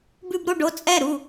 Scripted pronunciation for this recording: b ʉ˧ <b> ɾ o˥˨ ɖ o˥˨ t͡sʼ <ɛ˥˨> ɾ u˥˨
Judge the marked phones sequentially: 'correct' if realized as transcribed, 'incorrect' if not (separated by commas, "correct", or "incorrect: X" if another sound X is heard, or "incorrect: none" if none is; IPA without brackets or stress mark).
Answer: correct, correct